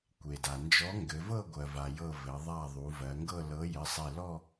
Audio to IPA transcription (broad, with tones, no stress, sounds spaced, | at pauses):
kʷ e˩ d a˩ n d͡ʒ ɔ˨˥ ŋ ɡ ɘ˩˧ v ɤ˥˧ ɡʷ ɜ˩ v a˩ j ɤ˧˩ v ɘ˩˧ ðˤ a˧˩ ðˤ u˩˧ v ɜ˩˧ ŋ ɡ ɤ˥˧ l ɤ˨˥ j ɘ˩˧˩ sˤ e˧˩ l ɔ˥˧